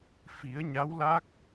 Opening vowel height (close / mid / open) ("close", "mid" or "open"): close